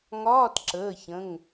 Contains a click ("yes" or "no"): yes